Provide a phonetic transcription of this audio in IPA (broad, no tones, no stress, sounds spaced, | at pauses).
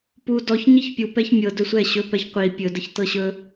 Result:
p u d ɔ ç ɲ i ç pʲ u p ɛ ç mʲ ɤ d ɵ sʷ ɛ ɕ ɵ p ɛ ç qʷ i pʲ ɵ d ə ç t ɤ ɕ ɵ